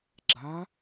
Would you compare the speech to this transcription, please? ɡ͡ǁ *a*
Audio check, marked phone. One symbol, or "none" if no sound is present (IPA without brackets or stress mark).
a